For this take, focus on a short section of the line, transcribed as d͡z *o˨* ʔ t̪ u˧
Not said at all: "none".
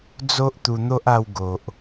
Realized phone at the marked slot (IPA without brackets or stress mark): o˦